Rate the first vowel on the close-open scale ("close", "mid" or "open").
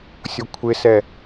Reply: close